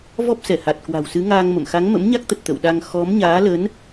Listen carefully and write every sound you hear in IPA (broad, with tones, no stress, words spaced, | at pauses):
vɔ˦˥p̚sɛ˧˩ha˨˩t̚ kwa̤˨˩wsɨ˨˦ŋaː˧ŋ mə̰˧˨m xa˨˦ŋmə̰˧˥mɲa˦˥k̚t̪ə˨˩t̚ t̪ə̰˧˨wɗa˧ŋ xɔ˨˦mɲaː˨˦lə˨˦n